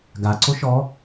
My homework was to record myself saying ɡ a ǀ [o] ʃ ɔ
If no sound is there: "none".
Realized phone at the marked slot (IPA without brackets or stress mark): o